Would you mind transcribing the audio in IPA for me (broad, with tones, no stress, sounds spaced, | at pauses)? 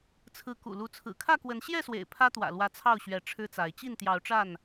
t͡sʰ ɹ̩˨˦ k ṵ˨˩ l u˨˦ t͡sʰ ɹ̩˨˩ kʰ ä˥˨ k w ə˨˦ n ɕ j ɛ˥˨ s w ḛ˨˩ ɪ̯ pʰ ä˦ t̪ w ä̰˨˩ l w ä˨˦ t͡sʰ ɑ˥˨ ʊ̯ ɕ ɥ ɛ˨˦ ʈ͡ʂʰ ɻ̩˦ t͡s a˨˦ ɪ̯ t͡ɕ i˥˨ n t̪ j ɑ˨˦ ʊ̯ ʈ͡ʂ a˥˨ n